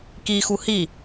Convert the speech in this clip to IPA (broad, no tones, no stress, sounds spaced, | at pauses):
k i x u h i